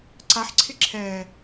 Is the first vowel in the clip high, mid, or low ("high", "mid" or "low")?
low